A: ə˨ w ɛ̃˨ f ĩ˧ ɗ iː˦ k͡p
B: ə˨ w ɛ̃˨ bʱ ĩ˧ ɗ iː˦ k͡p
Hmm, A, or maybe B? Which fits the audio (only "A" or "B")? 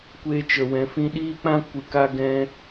A